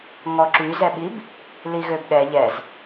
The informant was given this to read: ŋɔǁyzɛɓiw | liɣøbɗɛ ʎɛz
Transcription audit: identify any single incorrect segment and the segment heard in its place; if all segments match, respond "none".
w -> b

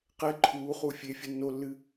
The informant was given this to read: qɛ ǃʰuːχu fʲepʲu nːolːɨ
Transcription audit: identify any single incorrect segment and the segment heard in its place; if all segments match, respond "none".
pʲ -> fʲ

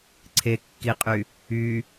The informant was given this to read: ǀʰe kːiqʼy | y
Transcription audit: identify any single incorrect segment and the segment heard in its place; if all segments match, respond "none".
none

